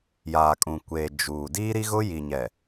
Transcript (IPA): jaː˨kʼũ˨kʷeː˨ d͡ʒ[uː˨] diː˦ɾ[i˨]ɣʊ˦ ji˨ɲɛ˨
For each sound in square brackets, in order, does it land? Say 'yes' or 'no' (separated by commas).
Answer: yes, no